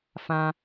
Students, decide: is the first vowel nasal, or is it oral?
nasal